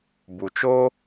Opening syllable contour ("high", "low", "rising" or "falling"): low